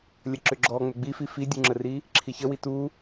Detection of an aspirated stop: present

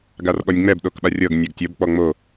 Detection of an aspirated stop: absent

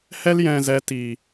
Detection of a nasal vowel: present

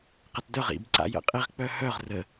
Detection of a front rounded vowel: present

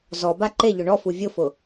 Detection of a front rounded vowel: absent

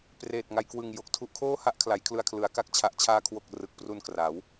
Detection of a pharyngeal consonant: absent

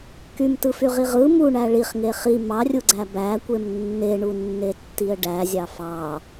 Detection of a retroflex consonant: present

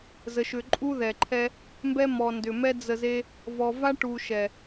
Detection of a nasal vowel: absent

